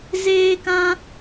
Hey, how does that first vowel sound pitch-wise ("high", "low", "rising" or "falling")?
high